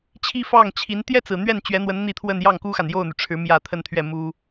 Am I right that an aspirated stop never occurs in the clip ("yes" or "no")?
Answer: no